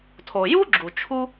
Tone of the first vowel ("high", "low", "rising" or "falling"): low